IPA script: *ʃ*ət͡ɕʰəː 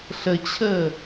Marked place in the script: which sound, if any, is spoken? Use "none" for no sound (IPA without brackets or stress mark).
ɬ